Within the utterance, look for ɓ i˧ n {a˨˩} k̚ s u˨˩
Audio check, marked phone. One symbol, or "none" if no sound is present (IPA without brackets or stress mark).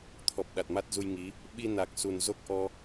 a˨˩